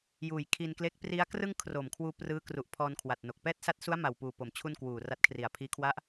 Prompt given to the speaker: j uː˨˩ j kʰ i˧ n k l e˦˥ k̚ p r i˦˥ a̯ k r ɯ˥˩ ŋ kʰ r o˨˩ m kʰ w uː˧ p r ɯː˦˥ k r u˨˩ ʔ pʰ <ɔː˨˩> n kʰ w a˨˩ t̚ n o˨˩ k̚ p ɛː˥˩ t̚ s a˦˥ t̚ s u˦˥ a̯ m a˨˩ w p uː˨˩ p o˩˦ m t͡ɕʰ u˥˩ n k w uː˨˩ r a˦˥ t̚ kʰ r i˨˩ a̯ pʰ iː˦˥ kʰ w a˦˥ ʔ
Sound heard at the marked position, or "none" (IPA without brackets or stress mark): ɔː˧